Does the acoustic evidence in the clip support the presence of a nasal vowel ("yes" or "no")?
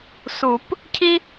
no